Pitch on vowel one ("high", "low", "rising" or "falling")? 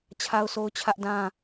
high